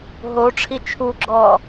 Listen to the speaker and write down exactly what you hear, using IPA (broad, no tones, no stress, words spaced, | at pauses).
ɦoʈ͡ʂʰi t͡ʃʰuɡ͡ǁɔː